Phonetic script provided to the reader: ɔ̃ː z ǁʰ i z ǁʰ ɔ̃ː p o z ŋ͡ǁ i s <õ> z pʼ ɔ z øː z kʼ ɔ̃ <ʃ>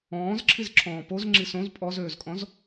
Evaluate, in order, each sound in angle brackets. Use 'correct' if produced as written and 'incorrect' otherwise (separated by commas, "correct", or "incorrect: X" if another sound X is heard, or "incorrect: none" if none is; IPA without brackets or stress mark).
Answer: correct, incorrect: z